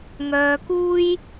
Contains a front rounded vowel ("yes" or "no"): yes